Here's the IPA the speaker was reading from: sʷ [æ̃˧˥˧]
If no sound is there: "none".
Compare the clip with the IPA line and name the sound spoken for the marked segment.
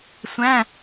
æ̃˧˥˧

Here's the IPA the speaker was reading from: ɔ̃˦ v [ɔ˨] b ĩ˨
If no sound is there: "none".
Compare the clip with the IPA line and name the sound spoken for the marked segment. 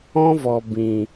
ɔ˨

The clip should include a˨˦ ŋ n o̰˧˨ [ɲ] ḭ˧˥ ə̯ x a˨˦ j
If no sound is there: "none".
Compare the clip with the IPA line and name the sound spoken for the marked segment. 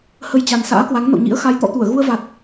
ɲ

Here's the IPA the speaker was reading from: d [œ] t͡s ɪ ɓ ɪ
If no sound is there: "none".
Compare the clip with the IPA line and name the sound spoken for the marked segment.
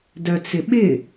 œ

